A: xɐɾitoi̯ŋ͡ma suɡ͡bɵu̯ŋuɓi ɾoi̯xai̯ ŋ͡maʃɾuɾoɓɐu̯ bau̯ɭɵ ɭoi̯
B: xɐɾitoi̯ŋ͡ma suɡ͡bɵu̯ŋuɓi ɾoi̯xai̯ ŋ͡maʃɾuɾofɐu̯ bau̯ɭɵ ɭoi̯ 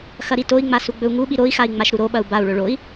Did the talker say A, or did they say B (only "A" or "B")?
A